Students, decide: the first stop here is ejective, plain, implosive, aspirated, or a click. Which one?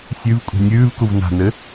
ejective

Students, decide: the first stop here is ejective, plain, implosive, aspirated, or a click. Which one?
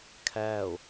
aspirated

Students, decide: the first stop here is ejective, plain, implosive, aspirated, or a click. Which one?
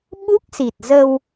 implosive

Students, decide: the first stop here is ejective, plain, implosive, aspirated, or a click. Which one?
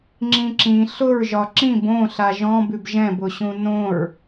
click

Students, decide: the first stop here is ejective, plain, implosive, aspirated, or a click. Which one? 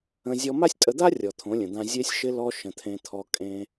ejective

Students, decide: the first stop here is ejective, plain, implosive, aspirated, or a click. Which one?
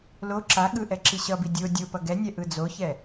click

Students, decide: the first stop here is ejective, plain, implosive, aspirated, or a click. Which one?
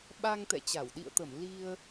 implosive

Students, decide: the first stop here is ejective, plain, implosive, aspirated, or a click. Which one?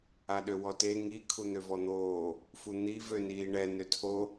implosive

